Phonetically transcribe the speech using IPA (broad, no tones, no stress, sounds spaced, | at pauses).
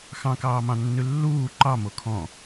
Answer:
x ɑ̃ k ɑː m ɑ̃ nː ʉ lː uː ǃ ɑ m o kʰ ɔ̃